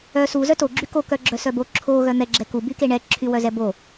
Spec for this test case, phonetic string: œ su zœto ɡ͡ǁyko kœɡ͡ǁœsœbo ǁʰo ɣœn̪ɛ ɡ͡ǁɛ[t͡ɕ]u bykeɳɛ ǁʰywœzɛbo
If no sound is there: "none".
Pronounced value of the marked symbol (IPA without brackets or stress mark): k